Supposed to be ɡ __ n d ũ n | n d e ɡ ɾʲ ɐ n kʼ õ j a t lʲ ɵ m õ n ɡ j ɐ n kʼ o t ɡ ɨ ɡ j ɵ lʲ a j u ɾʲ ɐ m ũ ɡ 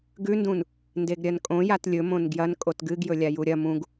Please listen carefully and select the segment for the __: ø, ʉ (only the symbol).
ʉ